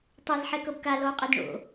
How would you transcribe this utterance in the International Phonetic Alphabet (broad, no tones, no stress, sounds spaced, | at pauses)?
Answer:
tˤ ɛ z ħ ɛ k ɤ b k a l ɔ u̯ qʼ ɛ d ɳ o̰